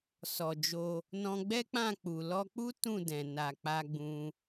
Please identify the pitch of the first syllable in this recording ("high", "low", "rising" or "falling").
low